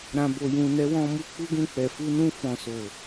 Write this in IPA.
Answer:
ɾã˨bo˨jũ˨ nɛ˨˦wɔ̃˧mu˦ k͡pu˦ɡũ˦˨k͡pɛ˨ fu˧nũ˧ fɔ̃˨so˨

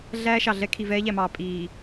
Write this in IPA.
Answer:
ɮæː˦ʃɑ˨ɮɛ˦ kʰi˨vɛː˦ʎæ˨mɑː˨ pʼiː˨

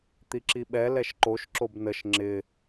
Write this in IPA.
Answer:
t̪iǁiɓɛ lɛʃǃoʃ ǁobnəʃ ŋ͡ǁɪ

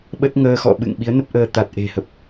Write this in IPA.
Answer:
ɓə˦˥t̚ ŋəː˧xɔ̰˧˨ ɓɨ̰˧˨ŋ ɓi˨˦ə̯nə˦˥p̚ʔəː˧ t̪a˨˩t̚ʔe̤˨˩hə˨˩p̚

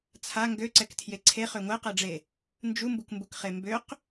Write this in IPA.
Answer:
t͡sʰa ŋɡøǀɛktʰje ǀʰeχø ŋʷɛqɛɖ͡ʐe | nd͡ʒumbukmbukχe mbøq

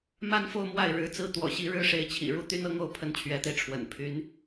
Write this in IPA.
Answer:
ma˥nfo˥˧ʊ̯ mwa˥˩ɪ̯ ɻɻ̩˧˥t͡sɹ̩˥ t̪wɔ̰˨˩ɕi˥ɻɻ̩˥ ʂe˧˥ɪ̯t͡ɕʰḭ˨˩ɻu˥˩ t̪y˥nɤ˥ŋo˥˧ʊ̯ pʰə˥˩nt͡ɕʰɥɛ˧˥t̪e˧ɪ̯ʈ͡ʂʰwə̰˨˩n pʰy˧˥n

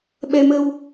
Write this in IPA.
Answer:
ɓɛ˧mə˧w

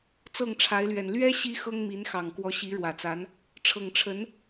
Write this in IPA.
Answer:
t͡sɤ˥˩ŋʈ͡ʂʰa˧˥ɪ̯lɥɛ˨˩n lɥɛ˥ ɕi˥ xɤ˥ŋmi˧˥nxɑ˨˩ŋ kwɔ˧˥ɕi˧˥ɻwä˨˩t͡sa˧˥n | ʈ͡ʂʰɤ˨˩ŋʈ͡ʂʰə˧˥n

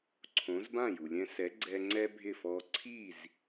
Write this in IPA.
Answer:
ǀʰõ˩˥z bã˥˩ju˩lʲɛ̃˧ sɛ˩˥ɡ͡ǀɛ˧ ŋ͡ǀɛ˥bʱɪ˥˩fɔ˧ ǀʰi˥˩z

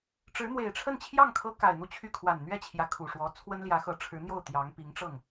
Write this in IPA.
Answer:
ʈ͡ʂɻ̩˧˥n̪we˨˩ɪ̯ʈ͡ʂʰə˥˧nt͡ɕʰjɑ˥˩ŋ kʰɤ˥ka˨˩ɪ̯ n̪u˥˧t͡ɕʰy˥˩ kʰwa˨˩nn̪ɥɛ˥˩ t͡ɕʰjä˧˥kʰu˨˩ʂwɔ˧˥ t͡sʰwə˥nljä˧˥xɤ˧˥ ʈ͡ʂʰɻ̩˧˥n̪jo˥˩ʊ̯ t̪jɑ˧˥ŋ pi˧˥ŋʈ͡ʂɤ˥˩ŋ

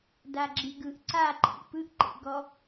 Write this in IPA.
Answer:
daɡ͡ǁiɡɯʔ ǀa ǃʰḭpɯʔ ǃḛɡɔ

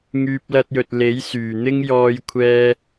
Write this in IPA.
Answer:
ŋyː˧p̚lɐ˧t̚jɵ˨t̚ le˨˥jsyː˨˩n̪ɪ˥ŋ jɔː˧jkʷʰɛː˧

